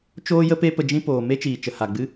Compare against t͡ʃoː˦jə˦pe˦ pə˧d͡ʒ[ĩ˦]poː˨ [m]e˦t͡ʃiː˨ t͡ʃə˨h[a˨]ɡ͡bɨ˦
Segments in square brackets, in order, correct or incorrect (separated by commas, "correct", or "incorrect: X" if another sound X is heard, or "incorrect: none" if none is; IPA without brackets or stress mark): correct, correct, correct